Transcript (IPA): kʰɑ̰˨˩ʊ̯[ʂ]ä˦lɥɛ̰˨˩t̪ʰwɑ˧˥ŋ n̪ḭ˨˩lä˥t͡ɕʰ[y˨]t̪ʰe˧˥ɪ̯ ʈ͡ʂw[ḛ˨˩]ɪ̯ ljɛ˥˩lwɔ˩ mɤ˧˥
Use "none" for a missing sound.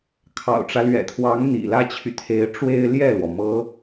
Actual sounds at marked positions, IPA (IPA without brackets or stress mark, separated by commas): ʈ͡ʂ, y˨, e˥